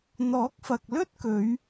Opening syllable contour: rising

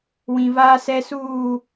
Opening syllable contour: low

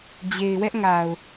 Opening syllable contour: low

